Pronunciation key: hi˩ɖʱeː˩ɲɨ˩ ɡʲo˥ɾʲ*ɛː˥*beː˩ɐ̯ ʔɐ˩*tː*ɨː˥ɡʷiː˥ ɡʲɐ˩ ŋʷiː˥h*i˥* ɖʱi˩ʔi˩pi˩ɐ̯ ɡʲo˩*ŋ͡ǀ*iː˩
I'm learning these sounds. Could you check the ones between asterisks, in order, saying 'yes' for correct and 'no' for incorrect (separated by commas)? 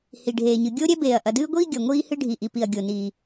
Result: no, no, no, no